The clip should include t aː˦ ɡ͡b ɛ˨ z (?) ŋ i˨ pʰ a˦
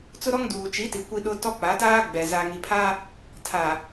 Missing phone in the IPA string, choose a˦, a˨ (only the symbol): a˨